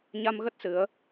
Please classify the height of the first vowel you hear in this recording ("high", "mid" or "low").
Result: low